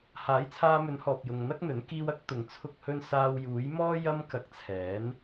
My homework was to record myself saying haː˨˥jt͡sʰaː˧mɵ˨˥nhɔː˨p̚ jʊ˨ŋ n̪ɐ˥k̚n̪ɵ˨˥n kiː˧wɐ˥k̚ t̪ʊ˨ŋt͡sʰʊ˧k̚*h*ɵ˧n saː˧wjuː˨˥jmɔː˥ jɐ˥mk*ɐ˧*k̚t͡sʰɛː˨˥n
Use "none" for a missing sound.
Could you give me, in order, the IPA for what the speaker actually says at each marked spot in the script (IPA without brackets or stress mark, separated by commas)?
h, ɐ˧